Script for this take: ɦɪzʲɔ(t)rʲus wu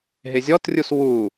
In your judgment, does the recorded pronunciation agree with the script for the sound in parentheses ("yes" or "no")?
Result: yes